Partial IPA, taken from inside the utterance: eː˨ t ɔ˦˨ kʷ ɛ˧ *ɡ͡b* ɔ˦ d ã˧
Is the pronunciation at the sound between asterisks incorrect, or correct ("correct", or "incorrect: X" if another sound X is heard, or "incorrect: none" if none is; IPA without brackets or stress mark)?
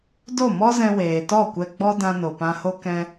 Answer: correct